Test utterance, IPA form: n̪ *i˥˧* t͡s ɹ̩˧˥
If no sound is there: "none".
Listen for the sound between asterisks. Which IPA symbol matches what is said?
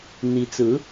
i˧˥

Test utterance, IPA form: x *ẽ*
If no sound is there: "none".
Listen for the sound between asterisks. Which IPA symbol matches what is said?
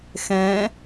ẽ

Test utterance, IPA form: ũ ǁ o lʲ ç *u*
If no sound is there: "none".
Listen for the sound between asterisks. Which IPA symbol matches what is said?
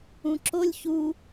u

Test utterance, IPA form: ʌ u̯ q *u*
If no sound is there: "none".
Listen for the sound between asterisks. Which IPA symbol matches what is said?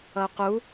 u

